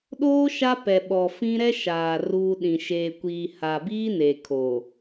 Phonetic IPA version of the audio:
ɗ oː˦ ʃ a˦ p ɛ˨ ɓ ɔ˨ f ĩ˦ ɾ ɛ˦ ʃ aː˨ r uː˦ ɗ ĩ˨ ʃ eː˨ kʷ iː˨ h a˨ b iː˦ n eː˨ kʰ oː˨

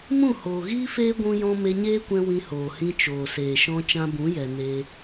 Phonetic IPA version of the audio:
m ũ˦˨ h oː˨ ɣ iː˦ f eː˦ ɡʷ ũ˦ j ɔ̃˦ m e˧ ɲ eː˦ kʷ ɛ̃˧ w ĩ˧ h oː˨ h ĩ˧ t͡ʃ oː˨ s eː˨ ʃ ɔ̃˧ t͡ʃ ã˧ b ũ˨˦ j ɛ˨ n eː˧

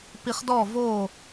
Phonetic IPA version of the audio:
p i˧ χ d ɔ˥˨ v oː˥˨

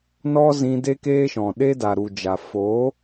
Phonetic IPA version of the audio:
n ɔ˦ z ĩ˧ d e˦ k eː˦ ʃ ɔ̃˨ ɗ e˦ d a˨ ɾ u˨ d͡ʒ a˨ f o˨˦

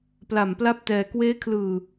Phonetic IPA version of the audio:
p l a˨˩ m p l a˥˩ p̚ t ɛː˧ k w eː˦˥ kʰ l ɯː˨˩

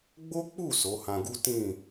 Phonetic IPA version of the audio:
ɡ͡b o˦ k͡p u˦˨ s o˨˦ h ã˧ ɡ u˦ t ĩ˦˨

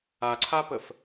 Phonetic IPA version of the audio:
a ǀʰ a p ə f

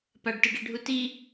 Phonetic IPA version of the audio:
p a ɖ t ɯ ɖ e ɖʱ u t i

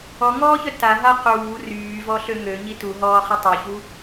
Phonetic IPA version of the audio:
ɔ ŋ ɔː ç œ t a ɦ a q uː r yː v ɔ ɬ ø ŋ ø ɲ i t u ɦ ɔː χ i tˤ œ ç u

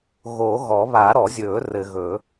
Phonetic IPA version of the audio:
ɣ o˨˩˦ ɣ ɔ˨˩˦ β a˨˩˦ ɾ ɔ˨˩˦ zʲ ɵː˨˩˦ r ɘ˨ ɣ ɵ˨˩˦

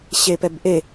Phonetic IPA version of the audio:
ɕ e p ɛ b ʔ e

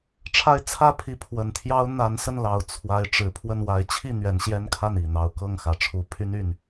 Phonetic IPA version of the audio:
ʈ͡ʂʰ a˦ ɪ̯ t͡sʰ ä˥˨ pʰ i˨˦ pʰ w ə˨˩ n t̪ʰ j ɑ˦ ʊ̯ n̪ a˨˦ n s ə˥˨ n l ɑ˨˩ ʊ̯ t͡sʰ w a˨˦ ɪ̯ ʈ͡ʂ ɻ̩˨˩ pʰ w ə˥˨ n w a˨˦ ɪ̯ t͡ɕʰ i˥˨ n̪ ɥ ɛ˨˦ n ɕ j ɛ˦ n kʰ a˥˨ n i˨˩ n̪ ɑ˦ ʊ̯ k ɤ˥˨ ŋ x ä˨˩ ʈ͡ʂʰ u˨˦ pʰ y˦ n y˨˩ n

